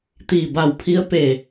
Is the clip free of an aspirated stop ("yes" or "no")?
no